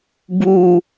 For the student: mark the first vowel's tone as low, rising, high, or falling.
high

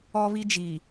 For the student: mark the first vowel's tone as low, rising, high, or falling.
high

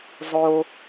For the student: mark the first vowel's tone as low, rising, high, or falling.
low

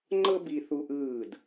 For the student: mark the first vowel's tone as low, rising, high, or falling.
high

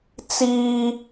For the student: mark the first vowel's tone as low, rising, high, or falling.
high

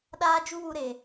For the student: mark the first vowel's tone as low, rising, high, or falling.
high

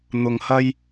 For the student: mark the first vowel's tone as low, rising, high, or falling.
low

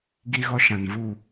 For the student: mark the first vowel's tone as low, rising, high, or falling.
high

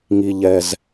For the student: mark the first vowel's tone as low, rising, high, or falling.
low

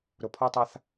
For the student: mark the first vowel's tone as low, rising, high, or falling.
low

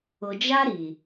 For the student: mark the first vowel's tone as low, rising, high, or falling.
low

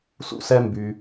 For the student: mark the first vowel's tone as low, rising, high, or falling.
high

